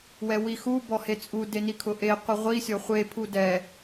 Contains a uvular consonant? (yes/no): yes